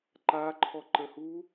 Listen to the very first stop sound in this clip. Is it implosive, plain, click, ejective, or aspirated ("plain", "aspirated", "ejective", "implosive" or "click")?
click